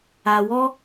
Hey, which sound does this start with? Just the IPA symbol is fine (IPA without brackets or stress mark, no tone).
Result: a